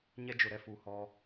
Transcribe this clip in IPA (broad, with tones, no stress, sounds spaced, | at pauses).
ɲ ɛ˦ d͡ʒ ʊ˨ ɾ ɛ˦ f u˨ h ɔ˦